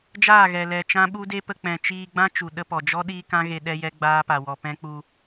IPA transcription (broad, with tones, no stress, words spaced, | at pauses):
d͡ʒaː˦˨ ɣɛ˨ lɛ˨t͡ʃã˦ɓu˦de˦ pə˧k͡pɛ̃˨ t͡ʃiː˧ɡ͡bã˦ t͡ʃu˨ɗə˧pɔ˨d͡ʒɔ˦ ɗiː˦kã˦ɣe˧ ɗɛ˦jɛ˦ɡ͡baː˦ pa˨wɔ˨pɛ̃˦k͡pu˧